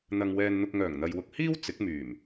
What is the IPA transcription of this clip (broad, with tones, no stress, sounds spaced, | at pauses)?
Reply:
n̪ ɐ˨ ŋ w ɛː˧ n n̪ ʊ˧ k̚ ŋ œː˨˩ ŋ n̪ ɐ˨ j w ʊ˧ k̚ h iː˥ w t͡s ɪ˨˥ k̚ m yː˨˩ m